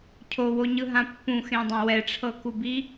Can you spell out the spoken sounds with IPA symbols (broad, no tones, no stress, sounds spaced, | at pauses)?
cʰ o w o ɲ ɯ ɦ ã pː ũ x ẽ dˤ ã w ɛ ʈ͡ʂʰ ɤ k u b i